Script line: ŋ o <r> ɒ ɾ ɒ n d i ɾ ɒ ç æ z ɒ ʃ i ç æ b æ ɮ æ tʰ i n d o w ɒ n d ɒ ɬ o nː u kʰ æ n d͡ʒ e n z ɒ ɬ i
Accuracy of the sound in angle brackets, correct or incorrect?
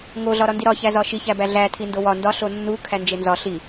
incorrect